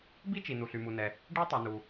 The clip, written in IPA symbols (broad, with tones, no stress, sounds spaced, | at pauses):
b i˥ t͡ʃ i˩ n u˩ ɬ y˩ m u˩ n ɛ˩ | ɖ e˥ tˤ y˩ n u˩